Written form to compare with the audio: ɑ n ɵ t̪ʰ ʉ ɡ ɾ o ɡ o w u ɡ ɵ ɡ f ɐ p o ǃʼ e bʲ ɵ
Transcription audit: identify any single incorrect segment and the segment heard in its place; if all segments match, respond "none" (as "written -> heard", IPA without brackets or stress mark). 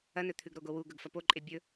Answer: ɑ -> ɐ